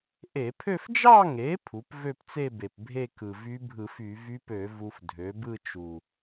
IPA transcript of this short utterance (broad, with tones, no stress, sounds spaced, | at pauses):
ʔ e˧˩˧ pʰ ø˥˧ f d͡ʒ ɑ˥˧ ŋ e˩˥ pʰ u˩˥ p v ø˥˧ p t͡s e˥˧ b e˨˩ p bʱ e˥˧ k ɯ˨˩ v y˧˥ bʱ ɯ˧˩˧ f y˧˩˧ v y˧˥ p ø˧˩˧ v u˧ f dʱ ø˩˥ b ɯ˥˧ t͡ʃ u˨˩